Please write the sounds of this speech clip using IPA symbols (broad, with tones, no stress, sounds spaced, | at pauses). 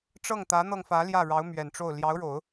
ʈ͡ʂ ɤ˥˩ ŋ t̪ ä˧˥ n̪ ɤ˧ ŋ f ä˧˥ l j ä˥˩ ɻ ɑ˧˥ ʊ̯ m ɥ ɛ˨˩ n ʈ͡ʂ o˥˩ ʊ̯ l j ɑ˧˥ ʊ̯ ɻ o˨˩˦ ʊ̯